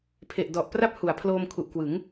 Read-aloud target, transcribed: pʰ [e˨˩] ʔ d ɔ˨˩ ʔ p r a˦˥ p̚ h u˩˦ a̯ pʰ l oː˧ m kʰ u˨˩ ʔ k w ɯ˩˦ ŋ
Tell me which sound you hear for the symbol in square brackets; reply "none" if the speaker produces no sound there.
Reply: e˨˩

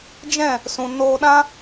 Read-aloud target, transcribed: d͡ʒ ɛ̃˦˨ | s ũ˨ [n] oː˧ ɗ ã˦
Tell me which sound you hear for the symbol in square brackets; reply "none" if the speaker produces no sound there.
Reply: n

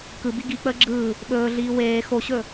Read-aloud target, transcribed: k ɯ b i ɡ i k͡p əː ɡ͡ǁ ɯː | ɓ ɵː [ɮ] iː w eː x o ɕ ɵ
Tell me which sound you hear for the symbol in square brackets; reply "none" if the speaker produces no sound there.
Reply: ɮ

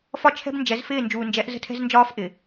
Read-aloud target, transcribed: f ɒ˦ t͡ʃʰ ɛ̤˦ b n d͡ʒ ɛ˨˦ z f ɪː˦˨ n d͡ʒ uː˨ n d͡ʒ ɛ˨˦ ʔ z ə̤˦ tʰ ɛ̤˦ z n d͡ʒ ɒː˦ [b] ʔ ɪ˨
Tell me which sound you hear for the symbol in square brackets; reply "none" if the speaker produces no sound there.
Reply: f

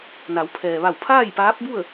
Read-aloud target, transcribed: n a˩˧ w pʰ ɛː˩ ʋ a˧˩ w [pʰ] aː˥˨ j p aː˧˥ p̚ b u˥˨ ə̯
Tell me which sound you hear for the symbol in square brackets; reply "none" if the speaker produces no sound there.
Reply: pʰ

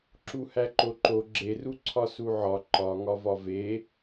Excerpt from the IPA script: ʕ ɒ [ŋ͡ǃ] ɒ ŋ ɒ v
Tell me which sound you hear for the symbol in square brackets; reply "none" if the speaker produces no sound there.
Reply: ǃ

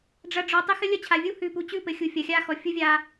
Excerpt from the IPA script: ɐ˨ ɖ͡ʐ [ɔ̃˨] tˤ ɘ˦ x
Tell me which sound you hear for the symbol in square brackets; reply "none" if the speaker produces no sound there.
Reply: ɔ˨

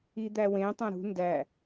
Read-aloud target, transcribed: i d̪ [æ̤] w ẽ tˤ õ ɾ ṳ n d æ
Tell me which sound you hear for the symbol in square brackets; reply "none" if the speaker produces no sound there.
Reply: æ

